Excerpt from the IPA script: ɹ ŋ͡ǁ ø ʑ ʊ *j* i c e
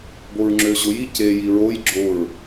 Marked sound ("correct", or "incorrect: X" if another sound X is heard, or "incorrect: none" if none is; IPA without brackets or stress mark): correct